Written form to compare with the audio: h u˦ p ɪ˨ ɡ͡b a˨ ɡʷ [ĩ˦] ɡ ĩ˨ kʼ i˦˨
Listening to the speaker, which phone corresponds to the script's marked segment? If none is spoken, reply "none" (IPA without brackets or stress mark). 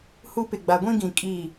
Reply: ĩ˦